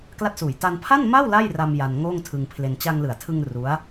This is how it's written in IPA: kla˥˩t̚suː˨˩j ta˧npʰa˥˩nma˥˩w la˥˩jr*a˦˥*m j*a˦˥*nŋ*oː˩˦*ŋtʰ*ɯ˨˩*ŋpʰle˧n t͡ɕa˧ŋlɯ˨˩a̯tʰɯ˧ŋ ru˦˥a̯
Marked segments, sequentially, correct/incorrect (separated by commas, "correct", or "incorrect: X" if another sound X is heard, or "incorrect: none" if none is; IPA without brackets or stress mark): incorrect: a˧, incorrect: a˧, incorrect: oː˥˩, incorrect: ɯ˧